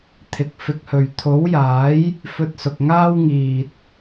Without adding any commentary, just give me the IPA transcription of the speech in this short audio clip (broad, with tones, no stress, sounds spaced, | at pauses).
t̪ʰ ɪ˨ k̚ f ɪ˧ k̚ h ɵ˨ ɥ t̪ʰ o˨˥ w j aː˨˥ j | f ɵ˧ t̚ s ʊ˨ k̚ ŋ aː˥ w ŋ iː˨ t̚